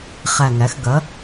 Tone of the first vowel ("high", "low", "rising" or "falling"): low